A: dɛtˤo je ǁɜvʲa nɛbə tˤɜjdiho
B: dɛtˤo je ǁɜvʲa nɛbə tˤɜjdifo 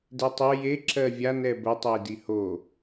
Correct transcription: A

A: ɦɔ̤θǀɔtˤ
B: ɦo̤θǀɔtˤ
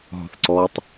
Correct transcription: A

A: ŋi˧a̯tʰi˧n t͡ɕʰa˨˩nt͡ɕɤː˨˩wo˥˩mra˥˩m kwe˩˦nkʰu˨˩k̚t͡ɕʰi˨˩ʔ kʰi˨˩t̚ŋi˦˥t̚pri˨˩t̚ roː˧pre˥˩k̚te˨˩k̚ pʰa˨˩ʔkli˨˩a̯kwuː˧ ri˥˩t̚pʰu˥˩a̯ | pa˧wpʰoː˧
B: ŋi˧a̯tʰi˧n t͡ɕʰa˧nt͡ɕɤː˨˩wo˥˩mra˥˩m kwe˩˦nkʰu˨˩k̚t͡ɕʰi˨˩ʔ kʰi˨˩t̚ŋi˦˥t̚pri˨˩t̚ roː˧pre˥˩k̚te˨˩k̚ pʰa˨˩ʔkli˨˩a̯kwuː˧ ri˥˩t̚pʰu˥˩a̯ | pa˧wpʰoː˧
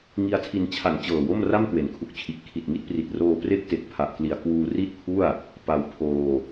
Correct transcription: A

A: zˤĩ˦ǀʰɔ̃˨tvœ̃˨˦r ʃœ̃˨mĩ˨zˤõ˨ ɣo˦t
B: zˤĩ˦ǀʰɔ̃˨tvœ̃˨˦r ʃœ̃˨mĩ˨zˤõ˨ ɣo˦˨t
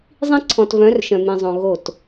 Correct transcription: B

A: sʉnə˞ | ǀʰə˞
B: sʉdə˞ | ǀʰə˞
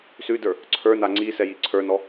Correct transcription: B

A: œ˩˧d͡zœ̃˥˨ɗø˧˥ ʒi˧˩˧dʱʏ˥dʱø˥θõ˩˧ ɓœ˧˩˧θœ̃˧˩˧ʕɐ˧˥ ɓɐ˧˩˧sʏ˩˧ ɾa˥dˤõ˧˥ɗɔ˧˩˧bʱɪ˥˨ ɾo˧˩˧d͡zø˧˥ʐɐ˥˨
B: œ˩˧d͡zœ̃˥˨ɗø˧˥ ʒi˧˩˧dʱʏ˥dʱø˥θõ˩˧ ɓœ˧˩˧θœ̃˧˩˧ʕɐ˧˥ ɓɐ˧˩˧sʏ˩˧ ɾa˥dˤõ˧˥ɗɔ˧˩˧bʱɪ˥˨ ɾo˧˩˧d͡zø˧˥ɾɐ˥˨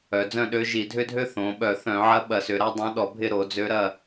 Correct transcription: B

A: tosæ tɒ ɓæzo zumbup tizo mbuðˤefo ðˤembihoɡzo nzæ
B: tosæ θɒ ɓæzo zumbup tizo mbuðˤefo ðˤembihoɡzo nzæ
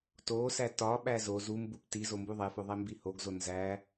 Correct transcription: A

